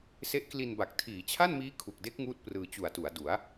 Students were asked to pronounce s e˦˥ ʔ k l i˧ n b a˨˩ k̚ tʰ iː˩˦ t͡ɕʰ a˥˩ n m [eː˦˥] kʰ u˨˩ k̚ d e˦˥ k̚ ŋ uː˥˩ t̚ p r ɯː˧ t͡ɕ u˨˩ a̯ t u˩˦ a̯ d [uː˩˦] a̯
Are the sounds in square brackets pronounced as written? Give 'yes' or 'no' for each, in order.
no, no

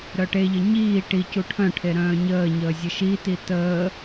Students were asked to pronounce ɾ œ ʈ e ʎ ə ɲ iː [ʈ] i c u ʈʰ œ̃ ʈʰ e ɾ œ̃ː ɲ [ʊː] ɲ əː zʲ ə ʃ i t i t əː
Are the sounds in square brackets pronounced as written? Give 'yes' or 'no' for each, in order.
yes, no

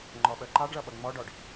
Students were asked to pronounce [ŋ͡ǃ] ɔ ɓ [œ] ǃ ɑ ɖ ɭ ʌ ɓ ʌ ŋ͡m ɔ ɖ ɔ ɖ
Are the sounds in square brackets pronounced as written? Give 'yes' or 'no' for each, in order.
yes, yes

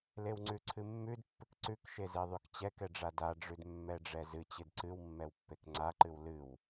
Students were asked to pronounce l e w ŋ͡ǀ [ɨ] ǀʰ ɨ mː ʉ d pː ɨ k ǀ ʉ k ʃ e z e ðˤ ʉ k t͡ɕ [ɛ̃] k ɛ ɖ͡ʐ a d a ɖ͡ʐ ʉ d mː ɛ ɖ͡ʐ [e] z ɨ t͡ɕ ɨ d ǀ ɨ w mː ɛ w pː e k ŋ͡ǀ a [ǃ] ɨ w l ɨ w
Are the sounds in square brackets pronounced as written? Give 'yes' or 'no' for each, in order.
no, no, no, yes

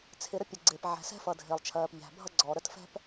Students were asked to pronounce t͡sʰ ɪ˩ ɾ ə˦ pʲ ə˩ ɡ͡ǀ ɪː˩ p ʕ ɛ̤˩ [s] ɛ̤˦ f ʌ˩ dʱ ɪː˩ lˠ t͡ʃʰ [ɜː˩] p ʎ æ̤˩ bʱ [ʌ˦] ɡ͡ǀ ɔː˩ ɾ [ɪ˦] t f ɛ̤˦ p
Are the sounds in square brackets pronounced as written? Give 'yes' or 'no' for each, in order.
yes, yes, yes, no

